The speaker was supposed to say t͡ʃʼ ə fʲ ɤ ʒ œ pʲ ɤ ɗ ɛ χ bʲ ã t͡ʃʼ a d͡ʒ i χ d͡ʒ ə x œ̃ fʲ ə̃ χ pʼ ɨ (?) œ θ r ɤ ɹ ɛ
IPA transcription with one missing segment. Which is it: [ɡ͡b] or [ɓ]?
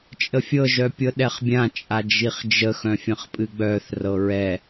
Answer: ɡ͡b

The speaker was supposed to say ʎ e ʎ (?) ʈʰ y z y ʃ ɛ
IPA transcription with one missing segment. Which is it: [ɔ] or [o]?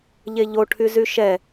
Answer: o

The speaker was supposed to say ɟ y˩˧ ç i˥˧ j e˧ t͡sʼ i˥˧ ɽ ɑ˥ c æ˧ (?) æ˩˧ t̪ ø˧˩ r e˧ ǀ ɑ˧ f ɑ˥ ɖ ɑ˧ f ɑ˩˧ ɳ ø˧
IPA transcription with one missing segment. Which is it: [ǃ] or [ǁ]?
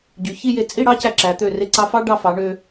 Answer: ǁ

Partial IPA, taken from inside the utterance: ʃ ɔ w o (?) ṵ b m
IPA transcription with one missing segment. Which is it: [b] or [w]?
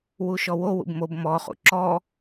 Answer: w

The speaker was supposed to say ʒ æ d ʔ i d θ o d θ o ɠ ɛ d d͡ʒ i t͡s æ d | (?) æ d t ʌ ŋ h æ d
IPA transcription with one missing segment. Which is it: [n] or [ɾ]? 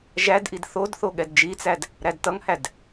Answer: ɾ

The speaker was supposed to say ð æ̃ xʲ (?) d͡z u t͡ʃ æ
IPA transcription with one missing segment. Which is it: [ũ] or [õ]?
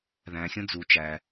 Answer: õ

